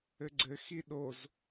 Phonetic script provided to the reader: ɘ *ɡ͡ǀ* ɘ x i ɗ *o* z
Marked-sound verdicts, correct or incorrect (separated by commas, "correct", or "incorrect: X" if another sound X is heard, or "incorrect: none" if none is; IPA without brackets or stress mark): correct, correct